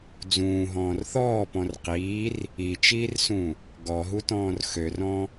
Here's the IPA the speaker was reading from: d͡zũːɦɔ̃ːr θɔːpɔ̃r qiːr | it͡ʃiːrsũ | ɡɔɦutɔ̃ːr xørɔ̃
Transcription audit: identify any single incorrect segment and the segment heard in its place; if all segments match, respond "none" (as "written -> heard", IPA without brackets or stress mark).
none